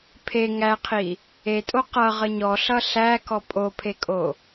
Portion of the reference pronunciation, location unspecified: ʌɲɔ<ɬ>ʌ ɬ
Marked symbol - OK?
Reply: yes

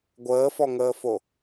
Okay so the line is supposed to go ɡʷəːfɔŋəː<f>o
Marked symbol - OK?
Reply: yes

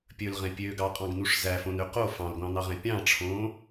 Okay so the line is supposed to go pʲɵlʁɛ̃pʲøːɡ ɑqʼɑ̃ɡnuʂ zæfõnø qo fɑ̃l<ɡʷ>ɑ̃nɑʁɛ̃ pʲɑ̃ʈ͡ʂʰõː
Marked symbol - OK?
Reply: yes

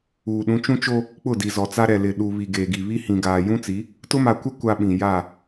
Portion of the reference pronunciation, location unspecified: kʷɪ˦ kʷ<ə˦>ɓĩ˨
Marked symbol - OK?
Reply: no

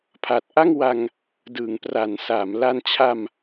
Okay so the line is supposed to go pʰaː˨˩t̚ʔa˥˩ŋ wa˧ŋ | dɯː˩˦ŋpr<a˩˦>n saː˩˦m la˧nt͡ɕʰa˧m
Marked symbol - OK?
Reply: yes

